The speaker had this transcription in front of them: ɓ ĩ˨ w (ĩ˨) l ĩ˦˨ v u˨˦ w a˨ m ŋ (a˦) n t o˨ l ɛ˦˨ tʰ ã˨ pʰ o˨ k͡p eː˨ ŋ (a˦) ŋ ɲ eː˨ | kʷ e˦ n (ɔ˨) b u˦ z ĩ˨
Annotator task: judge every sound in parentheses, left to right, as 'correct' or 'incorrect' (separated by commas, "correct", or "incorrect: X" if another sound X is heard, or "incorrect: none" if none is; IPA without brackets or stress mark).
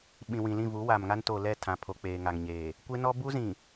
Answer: correct, correct, incorrect: a˨, incorrect: ɔ˦